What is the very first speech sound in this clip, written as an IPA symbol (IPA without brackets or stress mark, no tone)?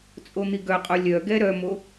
t͡sʼ